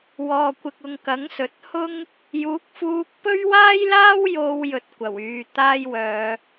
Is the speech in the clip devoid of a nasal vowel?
yes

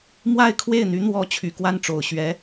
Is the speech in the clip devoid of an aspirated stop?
no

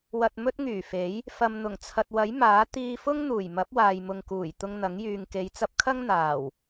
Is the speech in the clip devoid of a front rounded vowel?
no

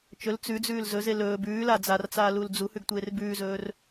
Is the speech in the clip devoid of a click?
yes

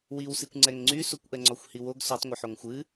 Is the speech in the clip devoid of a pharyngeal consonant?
no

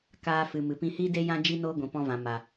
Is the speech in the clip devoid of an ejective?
yes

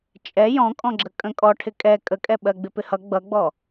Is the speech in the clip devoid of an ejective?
no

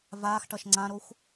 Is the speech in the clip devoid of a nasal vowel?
no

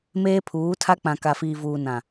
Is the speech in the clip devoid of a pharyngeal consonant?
yes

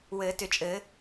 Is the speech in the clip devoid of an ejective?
no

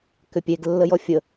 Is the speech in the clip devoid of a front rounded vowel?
no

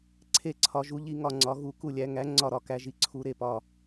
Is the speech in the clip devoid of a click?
no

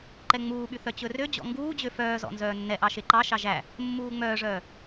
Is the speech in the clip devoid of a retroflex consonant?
no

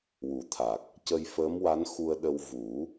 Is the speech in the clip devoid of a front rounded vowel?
yes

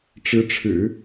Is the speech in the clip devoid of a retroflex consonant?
no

